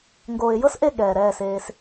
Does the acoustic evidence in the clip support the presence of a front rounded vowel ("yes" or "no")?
no